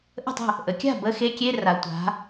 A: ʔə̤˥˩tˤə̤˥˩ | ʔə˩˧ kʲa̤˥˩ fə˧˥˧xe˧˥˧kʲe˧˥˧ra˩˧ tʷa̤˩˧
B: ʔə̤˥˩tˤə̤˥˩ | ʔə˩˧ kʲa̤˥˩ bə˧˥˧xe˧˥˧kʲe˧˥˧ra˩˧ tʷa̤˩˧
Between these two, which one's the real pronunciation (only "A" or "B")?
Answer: B